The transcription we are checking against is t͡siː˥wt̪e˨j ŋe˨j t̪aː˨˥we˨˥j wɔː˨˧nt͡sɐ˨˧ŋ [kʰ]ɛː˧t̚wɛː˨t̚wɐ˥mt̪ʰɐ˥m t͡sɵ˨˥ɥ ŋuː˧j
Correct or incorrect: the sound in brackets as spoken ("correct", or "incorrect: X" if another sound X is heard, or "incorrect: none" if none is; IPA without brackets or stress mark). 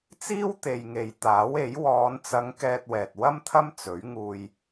incorrect: k